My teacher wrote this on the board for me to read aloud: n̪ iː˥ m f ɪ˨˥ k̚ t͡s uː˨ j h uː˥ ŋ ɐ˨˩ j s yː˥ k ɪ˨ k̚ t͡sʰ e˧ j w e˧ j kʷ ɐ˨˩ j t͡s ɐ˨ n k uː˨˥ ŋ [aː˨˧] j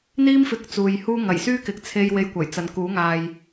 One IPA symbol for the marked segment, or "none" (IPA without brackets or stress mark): aː˨